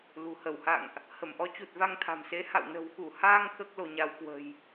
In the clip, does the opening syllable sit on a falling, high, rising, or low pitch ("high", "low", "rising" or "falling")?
low